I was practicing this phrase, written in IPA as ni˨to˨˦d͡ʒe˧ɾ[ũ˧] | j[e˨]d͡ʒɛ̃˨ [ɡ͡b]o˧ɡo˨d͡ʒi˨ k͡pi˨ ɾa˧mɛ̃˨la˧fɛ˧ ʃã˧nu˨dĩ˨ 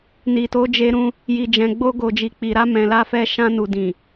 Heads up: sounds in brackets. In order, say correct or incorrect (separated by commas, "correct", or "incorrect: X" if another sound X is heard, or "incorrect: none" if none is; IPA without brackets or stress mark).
correct, incorrect: i˨, correct